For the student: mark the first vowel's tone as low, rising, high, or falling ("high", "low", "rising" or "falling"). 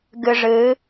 low